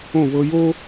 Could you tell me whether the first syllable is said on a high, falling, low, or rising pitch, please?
falling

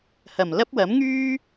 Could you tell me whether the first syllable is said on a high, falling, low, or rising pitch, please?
low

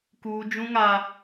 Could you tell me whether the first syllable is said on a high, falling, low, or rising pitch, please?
high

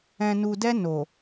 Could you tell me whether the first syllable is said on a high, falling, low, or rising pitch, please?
low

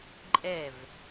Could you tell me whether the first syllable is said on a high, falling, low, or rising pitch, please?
falling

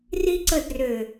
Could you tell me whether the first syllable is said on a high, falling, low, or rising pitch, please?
high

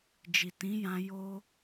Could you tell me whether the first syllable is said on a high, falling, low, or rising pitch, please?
low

